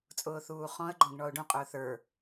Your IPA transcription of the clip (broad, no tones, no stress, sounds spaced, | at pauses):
t͡sʼ ʊː θ uː χ ɔ̃ ə̯ ɡ͡ǃ ɔ̃ ɡ ɳ ɔ ʊ̯ ɖ ũ qʼ ʊː θ ə˞